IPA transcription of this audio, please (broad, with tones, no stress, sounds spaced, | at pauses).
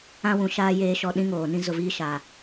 ã˦ w ũ˨ ʃ aː˦ j eː˨ ʃ ɔ˨ ɗ ĩ˦ ŋ oː˨ n ĩ˦ z ʊ˨ v iː˦ ʃ aː˨